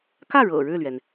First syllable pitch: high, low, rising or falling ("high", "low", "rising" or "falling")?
falling